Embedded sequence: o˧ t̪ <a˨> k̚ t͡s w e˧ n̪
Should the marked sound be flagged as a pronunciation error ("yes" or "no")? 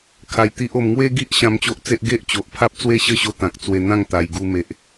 yes